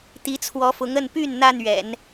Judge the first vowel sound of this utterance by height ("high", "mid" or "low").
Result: high